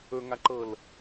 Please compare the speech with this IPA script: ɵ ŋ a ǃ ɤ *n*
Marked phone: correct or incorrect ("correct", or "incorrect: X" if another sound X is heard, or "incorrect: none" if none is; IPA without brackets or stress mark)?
incorrect: l